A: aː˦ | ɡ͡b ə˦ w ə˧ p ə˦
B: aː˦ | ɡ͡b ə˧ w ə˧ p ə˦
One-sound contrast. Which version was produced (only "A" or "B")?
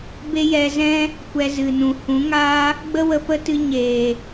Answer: A